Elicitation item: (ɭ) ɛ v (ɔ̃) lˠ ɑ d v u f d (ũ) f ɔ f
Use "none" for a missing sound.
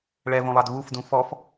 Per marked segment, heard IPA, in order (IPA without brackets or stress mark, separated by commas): ɭ, õ, ũ